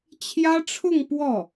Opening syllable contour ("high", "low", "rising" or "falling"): high